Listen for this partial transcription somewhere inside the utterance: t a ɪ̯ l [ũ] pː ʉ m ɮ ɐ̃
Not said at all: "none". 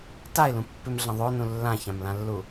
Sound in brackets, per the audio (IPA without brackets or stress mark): ũ